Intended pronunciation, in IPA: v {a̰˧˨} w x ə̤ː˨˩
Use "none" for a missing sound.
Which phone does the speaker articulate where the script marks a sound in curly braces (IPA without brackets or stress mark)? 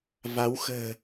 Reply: a˨˦